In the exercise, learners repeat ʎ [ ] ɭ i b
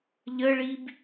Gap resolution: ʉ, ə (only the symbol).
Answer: ə